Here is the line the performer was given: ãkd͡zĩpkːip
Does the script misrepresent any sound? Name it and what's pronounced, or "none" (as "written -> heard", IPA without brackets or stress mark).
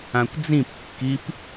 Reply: k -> kʷ